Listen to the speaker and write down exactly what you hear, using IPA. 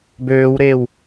b øː w ɾ eː w

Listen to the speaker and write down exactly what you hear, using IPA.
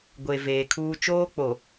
ɡʷ e˨ v eː˨ kʰ uː˦ t͡ʃ oː˦ k͡p o˨

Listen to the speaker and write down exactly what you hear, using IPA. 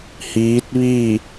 h iː˧˥ t̚ ʋ i˥˨

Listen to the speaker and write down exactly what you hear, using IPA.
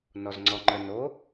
n ɔ z ŋ͡ǀ ɔ ŋ͡ǃ ə n o

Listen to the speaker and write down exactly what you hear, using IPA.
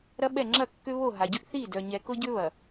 ɾ ɐ˦ ɓ ɛ˦˨ ŋ͡ǁ ɐ˦˨ kː ʏ˦ β o˦˨ ɦ a˨ ɟ ʏ˦ ʔ θ i˦˨ d œ˨ ɲ ɛ˨ k ʊ˦ ɟ ʏ˦ β ɐ˨

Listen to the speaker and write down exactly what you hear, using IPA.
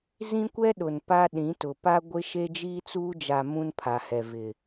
z ĩ˦ kʷ ɛ˦ ɗ ʊ˨ n p a˦ ɗ ĩ˨˦ t ʊ˨ p a˦ ɡʷ ɪ˦ ʃ e˦ d͡ʒ iː˦ t͡s uː˦ d͡ʒ a˨ m ũ˦ n pʰ a˨ h ɛ˨ v ɪ˨

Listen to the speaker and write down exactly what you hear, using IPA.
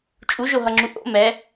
t͡ʃʼ u ʒ o ɦ ʌ ŋ͡ǁ u ʔ o̰ m ɛ

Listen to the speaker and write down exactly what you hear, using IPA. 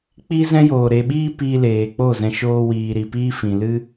k͡p i˦ z ɛ̃˦ j oː˨ ɾ e˨ ɓ iː˧ p iː˧ l eː˨ k͡p o˦˨ z ɛ̃˧ ʃ oː˧ w iː˨ ɾ i˨ p iː˦ f ĩ˨ l ɨ˦

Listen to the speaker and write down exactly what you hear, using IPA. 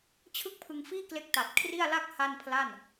t͡ɕʰ ɯ˥˩ k̚ pʰ ɯ˧ ŋ f iː˥˩ k l e˦˥ k̚ t a˨˩ t̚ kʰ r i˥˩ a̯ l a˥˩ k̚ h a˥˩ n pʰ l a˥˩ n

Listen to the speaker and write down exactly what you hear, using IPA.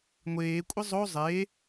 ŋʷ eː kʷʼ ɪ zˤ o zˤ e

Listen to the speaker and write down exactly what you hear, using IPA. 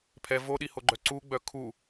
pʰ ɛ v o ɗ i h o ɡ͡ǃ œ ǀ u ɡ͡b œ kʰ u

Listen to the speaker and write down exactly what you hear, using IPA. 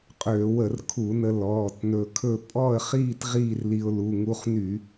qʼ øː˧˩˧ w ə˧˩˧ r kʰ u˧˩˧ n ə˧ l ɔː˩˧˩ t n ɵ˧ kʰ ɵ˥˧ pʼ ɔ˥˧ ə̯ χ iː˥˧ t ʁ iː˥˧ r l i˧ ʊ̯ l u˩˧˩ ŋ u˧ χ n y˧˩˧

